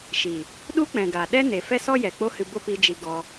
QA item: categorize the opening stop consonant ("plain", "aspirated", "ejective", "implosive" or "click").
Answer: implosive